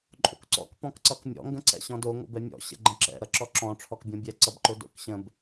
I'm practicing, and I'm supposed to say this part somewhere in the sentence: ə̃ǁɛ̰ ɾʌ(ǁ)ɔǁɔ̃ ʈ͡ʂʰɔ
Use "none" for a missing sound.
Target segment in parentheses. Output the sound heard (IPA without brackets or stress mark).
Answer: ǁ